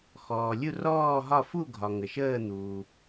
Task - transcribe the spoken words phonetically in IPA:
xɔː˩lʲu˦˨ rɔː˦˨ɦɒ˦˨ fu˦˨ɡʱɒ˩ ŋə˩ʃəː˦˨ n̪uː˩

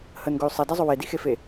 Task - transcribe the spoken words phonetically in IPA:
hənɡɵy̯ sˤɛdɛzˤɵ wedixefe

